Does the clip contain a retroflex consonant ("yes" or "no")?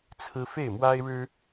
yes